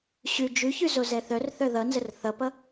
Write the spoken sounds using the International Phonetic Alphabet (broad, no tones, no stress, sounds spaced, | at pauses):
ɕ ʉ d͡ʒ ʉ ç ʉ z o z ɛ θ œ r θ œ ð ʌ n z ə r θ ʌ p ʌ